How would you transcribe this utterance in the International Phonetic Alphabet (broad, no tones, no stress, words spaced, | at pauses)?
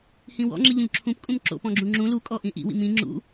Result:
hĩwɔ̰ŋ͡ǁi ʎõʎǁʰũp kʼũmǁo̰ pɔ̃ɡ͡ǁũŋ͡ǁũ lukʼɔʔĩ ʔḭwḭ mĩ ŋ͡ǁṵ